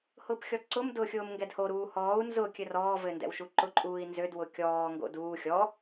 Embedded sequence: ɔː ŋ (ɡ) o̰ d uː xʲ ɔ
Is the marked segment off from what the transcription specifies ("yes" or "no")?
no